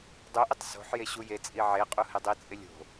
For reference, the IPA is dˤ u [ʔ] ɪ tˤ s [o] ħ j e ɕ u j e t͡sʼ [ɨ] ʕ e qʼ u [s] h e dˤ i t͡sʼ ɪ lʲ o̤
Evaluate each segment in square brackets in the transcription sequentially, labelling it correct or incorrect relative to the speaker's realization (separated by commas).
correct, incorrect, incorrect, incorrect